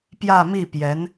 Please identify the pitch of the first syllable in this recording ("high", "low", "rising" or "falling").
falling